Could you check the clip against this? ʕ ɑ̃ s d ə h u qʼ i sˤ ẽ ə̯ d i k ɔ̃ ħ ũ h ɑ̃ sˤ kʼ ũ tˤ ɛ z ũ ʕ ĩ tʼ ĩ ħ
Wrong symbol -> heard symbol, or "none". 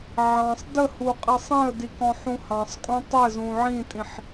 s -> sˤ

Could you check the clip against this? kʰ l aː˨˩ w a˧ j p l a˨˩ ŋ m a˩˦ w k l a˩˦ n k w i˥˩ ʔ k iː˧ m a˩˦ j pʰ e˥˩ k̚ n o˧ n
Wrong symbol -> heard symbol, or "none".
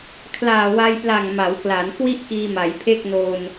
none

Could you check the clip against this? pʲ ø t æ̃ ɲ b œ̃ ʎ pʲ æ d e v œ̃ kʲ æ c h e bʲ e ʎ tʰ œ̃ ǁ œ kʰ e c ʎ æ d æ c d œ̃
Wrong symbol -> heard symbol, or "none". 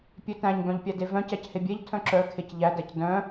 kʲ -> c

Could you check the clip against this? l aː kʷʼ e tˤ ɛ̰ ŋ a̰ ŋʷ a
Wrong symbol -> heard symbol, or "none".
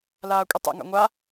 none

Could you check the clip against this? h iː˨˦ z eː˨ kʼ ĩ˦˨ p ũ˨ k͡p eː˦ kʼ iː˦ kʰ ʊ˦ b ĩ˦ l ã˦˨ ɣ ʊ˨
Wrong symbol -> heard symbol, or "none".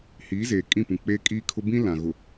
ã˦˨ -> ã˨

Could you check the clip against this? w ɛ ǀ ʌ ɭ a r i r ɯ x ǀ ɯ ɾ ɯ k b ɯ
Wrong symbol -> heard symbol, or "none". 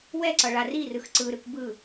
none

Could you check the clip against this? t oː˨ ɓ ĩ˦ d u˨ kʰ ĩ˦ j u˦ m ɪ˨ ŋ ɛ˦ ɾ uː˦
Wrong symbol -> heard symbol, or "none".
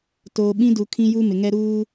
none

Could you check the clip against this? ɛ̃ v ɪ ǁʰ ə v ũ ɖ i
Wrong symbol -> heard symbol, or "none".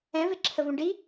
none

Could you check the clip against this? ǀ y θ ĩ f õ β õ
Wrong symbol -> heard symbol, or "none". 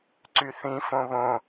none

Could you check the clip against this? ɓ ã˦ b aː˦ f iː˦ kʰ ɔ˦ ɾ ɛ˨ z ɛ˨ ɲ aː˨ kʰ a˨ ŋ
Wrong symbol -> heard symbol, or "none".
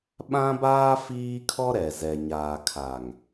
none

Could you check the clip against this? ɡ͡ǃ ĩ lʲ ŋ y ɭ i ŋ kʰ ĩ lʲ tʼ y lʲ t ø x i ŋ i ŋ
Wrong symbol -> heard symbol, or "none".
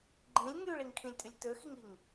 none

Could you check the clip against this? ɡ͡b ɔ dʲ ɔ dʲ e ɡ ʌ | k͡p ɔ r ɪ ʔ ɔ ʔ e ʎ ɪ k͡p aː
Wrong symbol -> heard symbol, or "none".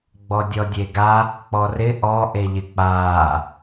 ʌ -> a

